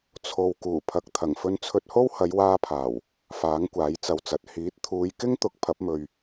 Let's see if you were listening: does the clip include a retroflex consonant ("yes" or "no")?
no